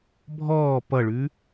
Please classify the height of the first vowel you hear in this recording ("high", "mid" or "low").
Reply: mid